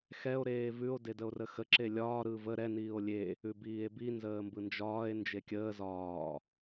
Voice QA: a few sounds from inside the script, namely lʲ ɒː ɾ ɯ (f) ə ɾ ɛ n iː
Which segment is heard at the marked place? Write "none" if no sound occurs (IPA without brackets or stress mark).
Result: v